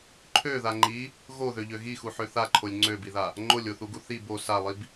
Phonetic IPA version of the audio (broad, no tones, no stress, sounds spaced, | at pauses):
ǃʰ ø ð a ŋ͡ǃ i | ɣ o ð ø ʎ ø ɣ i x u ħ ø θ a ǃʰ o lʲ ŋ͡ǀ ø b i ð a | ŋ͡ǃ o lʲ o θ u ɡ u θ i b o s a lˠ i b